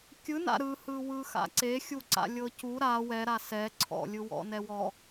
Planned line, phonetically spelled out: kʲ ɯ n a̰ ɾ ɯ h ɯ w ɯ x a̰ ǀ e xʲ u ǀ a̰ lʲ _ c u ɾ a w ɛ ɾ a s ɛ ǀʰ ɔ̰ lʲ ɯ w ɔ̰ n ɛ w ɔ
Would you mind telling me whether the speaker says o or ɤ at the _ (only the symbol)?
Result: ɤ